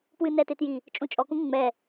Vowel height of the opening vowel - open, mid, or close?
close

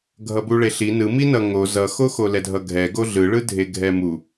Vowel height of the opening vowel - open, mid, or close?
mid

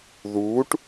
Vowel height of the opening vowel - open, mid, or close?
close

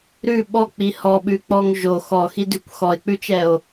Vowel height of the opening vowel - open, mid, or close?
close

